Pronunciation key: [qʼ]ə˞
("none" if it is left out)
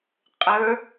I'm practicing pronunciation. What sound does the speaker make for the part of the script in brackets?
qʼ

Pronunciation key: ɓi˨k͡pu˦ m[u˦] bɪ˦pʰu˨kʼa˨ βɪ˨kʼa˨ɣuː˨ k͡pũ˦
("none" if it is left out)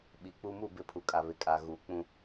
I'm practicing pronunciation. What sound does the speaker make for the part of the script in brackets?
u˦˨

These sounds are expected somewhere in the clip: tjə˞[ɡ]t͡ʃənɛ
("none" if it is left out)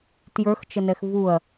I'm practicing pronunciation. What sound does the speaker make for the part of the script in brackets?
x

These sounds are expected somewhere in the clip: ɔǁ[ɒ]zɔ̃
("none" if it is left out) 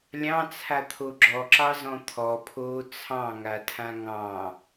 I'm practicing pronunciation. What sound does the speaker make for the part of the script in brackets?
ɑ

